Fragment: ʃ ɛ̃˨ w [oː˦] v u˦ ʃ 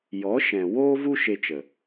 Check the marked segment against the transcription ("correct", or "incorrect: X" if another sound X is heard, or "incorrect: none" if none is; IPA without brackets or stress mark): correct